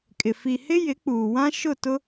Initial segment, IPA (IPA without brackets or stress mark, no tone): kʼ